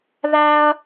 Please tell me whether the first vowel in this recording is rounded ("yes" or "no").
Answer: no